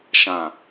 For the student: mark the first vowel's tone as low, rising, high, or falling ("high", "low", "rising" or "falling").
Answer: low